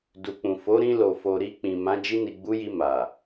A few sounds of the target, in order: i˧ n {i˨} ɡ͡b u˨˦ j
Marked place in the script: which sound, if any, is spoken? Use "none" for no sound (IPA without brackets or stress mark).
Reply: i˨